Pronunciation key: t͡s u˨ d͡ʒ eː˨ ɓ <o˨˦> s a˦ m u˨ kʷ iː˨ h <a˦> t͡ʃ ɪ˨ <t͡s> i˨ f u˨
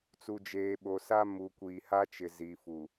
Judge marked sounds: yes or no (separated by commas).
no, yes, no